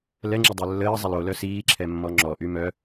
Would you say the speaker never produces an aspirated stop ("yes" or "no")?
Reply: no